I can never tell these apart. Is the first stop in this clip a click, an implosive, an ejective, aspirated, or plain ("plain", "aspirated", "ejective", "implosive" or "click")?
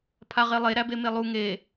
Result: aspirated